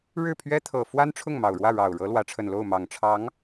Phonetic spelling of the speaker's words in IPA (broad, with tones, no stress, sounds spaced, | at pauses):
ɻ ɻ̩˥˩ pʰ ɥ ɛ˥ t̪ʰ ɤ˨˩ f w a˥ n ʈ͡ʂʰ ʊ˥˩ ŋ m ɑ˨˩ ʊ̯ ɻ w ä˥˩ ɻ ɑ˨˩ ʊ̯ ɻ ɤ˧˥ l w ä˧˥ ʈ͡ʂʰ ə˨˩ n l o˥˩ ʊ̯ m ɑ˨˩ ŋ ʈ͡ʂʰ ɑ˧˥ ŋ